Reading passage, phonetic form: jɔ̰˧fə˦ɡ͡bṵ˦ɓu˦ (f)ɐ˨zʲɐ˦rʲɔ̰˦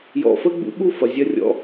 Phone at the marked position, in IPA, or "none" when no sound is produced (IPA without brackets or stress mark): f